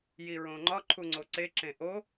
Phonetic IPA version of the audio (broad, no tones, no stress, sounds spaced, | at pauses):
j i ɹ õ ŋ͡ǃ ɒ ǃʰ u ŋ͡ǀ o ǀ e ǁ ẽ ʔ o